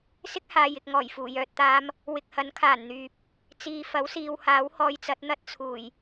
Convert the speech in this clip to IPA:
s ɪ˥ k̚ h aː˨ j ɪ˨ k̚ ŋ ɔː˨˩ j f uː˨˩ j œː˨ t̚ t̪ aː˧ m | w ɪ˨ k̚ h ɐ˨˥ n kʰ aː˨˩ n n̪ yː˨ p̚ | t͡s iː˨ f ɐ˨˥ w s iː˨ w h aː˨˥ w h ɔː˧ j t͡s ɐ˨˥ t̚ n̪ ɐ˥ t̚ t͡sʰ uː˨˩ j

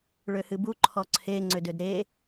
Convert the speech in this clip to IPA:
ɭ ø h ɨ b u ǃʰ ɔ ǀʰ e ŋ͡ǀ ø d ø d ɾ e

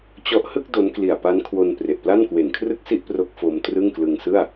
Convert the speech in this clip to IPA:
t͡ɕ ɔ˥˩ ʔ h ɯ˥˩ k̚ d o˦˥ n k l i˨˩ a̯ p a˦˥ n kʰ w o˧ n p r e˨˩ ʔ p l a˥˩ n k w e˨˩ n kʰ r ɯ˥˩ k̚ s i˥˩ ʔ p r o˦˥ k̚ f o˧ m t r ɯ˥˩ ŋ k l ɯ˧ ŋ s ɯ˥˩ a̯

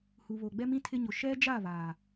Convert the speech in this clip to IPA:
h u˨ β o˨ ɡ͡b ɛ˦ m ĩ˦ tʰ ɪ˦ ɲ ʊ˨ ʃ ɛ˦ d͡ʒ a˦˨ β aː˨

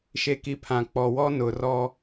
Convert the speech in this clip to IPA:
ʃ e˨ k i˨ pʰ ã˨ k͡p ɔ˨ w ɔ˦ n ʊ˨ r ɔ˦

